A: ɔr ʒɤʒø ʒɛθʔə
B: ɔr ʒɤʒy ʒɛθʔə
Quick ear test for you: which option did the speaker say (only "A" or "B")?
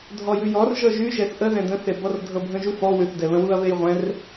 B